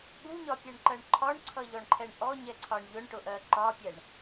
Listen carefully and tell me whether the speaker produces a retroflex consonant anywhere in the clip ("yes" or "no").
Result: yes